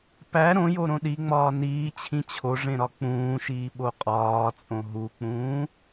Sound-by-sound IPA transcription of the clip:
p æ ɾ õ j o ɾ õ ɗ i ŋ͡m ɒː n iː t͡ɕʰ ĩ t͡ɕʰ o ʐ ẽ ɾ ɒ k͡p ũː ʃ iː ɓ o qʼ ɒː t͡sʼ õ ɦ u k͡p ũː

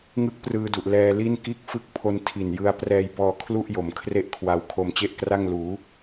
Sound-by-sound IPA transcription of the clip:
ŋ ɯ˦˥ k̚ p r ɯː˧ d u˨˩ ʔ l ɛː˧ l i˥˩ n k iː˥˩ k̚ f ɯ˥˩ k̚ pʰ o˧ n tʰ i˨˩ n j ɯ˧ a̯ p r ɛː˧ j b ɔː˧ kʰ l u˥˩ ʔ j o˩˦ m kʰ r e˥˩ ʔ kʰ w a˧ w kʰ o˧ m t͡ɕ e˥˩ ʔ k r a˥˩ ŋ l uː˩˦

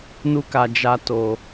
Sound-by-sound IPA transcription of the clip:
n u˦ k a˧ d͡ʒ a˦ t o˧

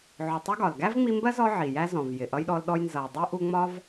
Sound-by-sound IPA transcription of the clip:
ʕ ʊ˨ tˤ ʊ˥ ɡ ɒ˩ l ɡ æ˥ v ŋ͡m i˦ m b ɜ˥ z ɔ˦ ʕ i˨ j æ˥ z ɔ̃˨ v j ɪ˩ ʔ ʌ˦ j ɗ ɔ˦ l ɗ ɔ˦ j n z ʌ˨ j dˤ i˥ ʔ u˦ ŋ͡m ɒ˥ v

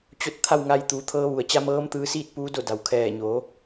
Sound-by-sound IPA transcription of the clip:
t͡ɕ o˥˨ t̚ t̪ʰ a˥˨ w ŋ a˧ j t̪ uː˩˧ t̪ʰ ɤː˧ ʋ u˩ ə̯ t͡ɕ a˧ m ɤː˧˥ m t̪ ɯː˧ s iː˥˨ t̚ p uː˧˥ d o˥˨ d a˩ w kʰ ɛː˧˩ ɲ oː˩˧

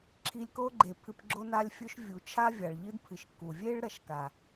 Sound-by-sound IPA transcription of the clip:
ǁʰ i˧ lʲ k o˦ ɡ͡ǃ e˨ pʰ ɨ˧ p ɡ͡ǁ o˦ n a˦ lʲ fʲ ɵ˦ ʃ vʲ u˨ t͡ʃʰ a˦ vʲ a˨ ɭ ʎ ɨ˦ d pʰ ɨ˨ ʃ k u˨ vʲ e˦ ɭ ɾ ɐ˦˨ ʃ k a˨

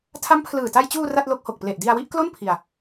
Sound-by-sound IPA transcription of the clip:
tʰ a˦˥ m pʰ l ɯː˨˩ t a˧ j t͡ɕ uː˧ r a˥˩ t̚ l o˦˥ k̚ h o˨˩ k̚ p l e˨˩ ʔ d i˧ a̯ w i˥˩ ʔ k l o˥˩ n pʰ i˧ a̯

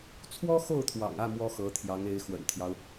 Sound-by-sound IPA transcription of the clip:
t͡sʰ w ɔ˥ x o˥˩ ʊ̯ t̪ʰ w ɑ̰˨˩ ŋ ä˥˩ m w ɔ˥ x ɤ˧˥ t̪ʰ j ɑ˧˥ ŋ e˧˥ ɪ̯ x w ə̰˨˩ n t̪ʰ j ɑ˦ ʊ̯

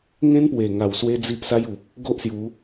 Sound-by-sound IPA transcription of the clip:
ŋ ẽ˦ n p w e˨˩ ŋ a˨˩ w s w e˧ d͡z i˦ ʔ s a˦ j u˨ p̚ | ɡ o˦ ʔ s j u˨˦

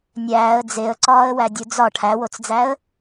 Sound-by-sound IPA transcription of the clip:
nʲ æː ə̯ d͡z e ə̯ ǀ ɒː ə̯ w æ dʲ u d͡z ɒ ʈʰ æ w o t͡s d͡z æ ə̯

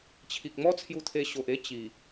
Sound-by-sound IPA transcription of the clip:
t͡ɕʰ i˨ k̚ m ɔ˦ t͡sʰ j u˧ t̪ʰ e˧ ɕ o˨ ʔ e˦ t͡ɕ i˨˩

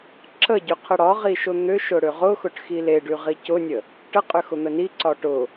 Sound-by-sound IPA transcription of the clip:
ǁ ə ɟ ʏ qʰ ə ɽ ɒ ʁ i ʃ ʊ n̪ ʏ ʃ ʊ ɽ ʏ ʁ ʊ x ʊ ʈ x i l e ɖ y ʁ i c ʊ nʲ ə | ʈ ə qʼ ʏ x ʊ n̪ ə n i ǀ ɒ ʈ ʊ

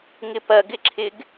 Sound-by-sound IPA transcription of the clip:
ŋ ɪ p ɐ ɡ ɪ ǁʰ ɪ ɡ

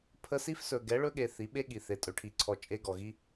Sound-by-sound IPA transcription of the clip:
pʰ ə˧ s i˦ f s ɵ˨ ɡ ɛ˨˦ ɭ ɵ˦ ɠ e˨ θ i˨˦ ɓ e˦ ɠ i˨ θ e˨ tʼ ɵ˨˦ ʈʰ i˨ ǀʰ ɔ˧ t͡ʃʼ e˧ ɡ ɔ˨ ɣ i˦

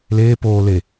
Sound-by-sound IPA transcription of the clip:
l eː p oː l e

